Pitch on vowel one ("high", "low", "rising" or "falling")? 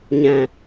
low